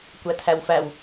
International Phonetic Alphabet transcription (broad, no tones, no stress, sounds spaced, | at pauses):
kʷ æ tʰ æ w f æ w